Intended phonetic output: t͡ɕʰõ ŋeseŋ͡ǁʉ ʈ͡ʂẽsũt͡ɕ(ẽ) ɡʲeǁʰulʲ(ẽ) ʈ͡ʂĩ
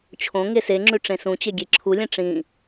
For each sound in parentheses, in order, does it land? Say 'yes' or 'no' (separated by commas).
no, yes